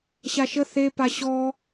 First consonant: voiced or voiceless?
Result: voiceless